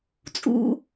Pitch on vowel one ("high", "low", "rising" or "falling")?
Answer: low